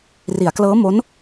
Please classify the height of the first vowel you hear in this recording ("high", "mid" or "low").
high